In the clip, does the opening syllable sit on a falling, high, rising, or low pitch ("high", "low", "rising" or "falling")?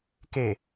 low